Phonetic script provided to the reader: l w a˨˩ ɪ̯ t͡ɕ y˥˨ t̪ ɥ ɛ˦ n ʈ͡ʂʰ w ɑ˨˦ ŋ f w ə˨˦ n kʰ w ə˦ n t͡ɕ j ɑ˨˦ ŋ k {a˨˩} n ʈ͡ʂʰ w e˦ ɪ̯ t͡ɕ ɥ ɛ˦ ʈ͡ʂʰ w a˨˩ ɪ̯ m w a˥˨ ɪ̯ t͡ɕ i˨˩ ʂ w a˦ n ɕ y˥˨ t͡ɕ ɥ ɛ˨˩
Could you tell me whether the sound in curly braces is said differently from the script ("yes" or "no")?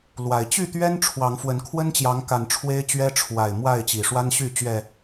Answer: no